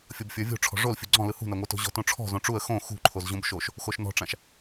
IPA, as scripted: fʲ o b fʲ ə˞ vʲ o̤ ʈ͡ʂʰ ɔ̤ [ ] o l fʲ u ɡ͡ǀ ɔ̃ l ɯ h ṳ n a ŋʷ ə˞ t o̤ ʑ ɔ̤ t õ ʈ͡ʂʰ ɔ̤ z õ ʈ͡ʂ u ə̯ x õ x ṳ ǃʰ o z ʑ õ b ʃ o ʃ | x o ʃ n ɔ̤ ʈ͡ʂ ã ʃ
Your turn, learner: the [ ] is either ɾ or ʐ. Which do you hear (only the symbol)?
ʐ